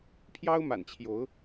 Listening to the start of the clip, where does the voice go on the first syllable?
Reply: high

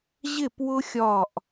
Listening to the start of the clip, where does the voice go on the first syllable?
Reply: falling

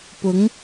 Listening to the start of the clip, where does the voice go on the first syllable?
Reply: rising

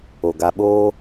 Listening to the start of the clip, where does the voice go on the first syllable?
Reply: low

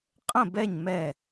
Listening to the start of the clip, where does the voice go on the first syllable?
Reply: falling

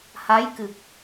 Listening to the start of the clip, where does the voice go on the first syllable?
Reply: rising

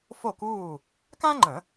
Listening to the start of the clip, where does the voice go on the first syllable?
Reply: falling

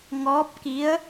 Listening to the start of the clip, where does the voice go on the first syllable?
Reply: rising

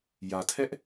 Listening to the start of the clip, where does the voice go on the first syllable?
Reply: low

